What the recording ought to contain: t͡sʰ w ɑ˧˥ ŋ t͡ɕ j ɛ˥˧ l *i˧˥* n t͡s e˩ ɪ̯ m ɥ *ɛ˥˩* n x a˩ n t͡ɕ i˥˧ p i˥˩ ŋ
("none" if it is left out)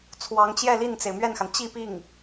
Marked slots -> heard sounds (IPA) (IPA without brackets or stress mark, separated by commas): i˥˩, ɛ˥˩